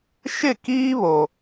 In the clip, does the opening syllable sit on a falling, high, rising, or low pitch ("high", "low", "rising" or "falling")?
falling